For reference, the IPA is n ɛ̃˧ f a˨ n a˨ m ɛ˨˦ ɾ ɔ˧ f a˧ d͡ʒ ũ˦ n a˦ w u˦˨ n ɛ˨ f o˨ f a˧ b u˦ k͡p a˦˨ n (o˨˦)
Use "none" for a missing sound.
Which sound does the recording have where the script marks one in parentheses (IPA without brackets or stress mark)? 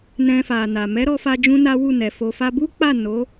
o˨˦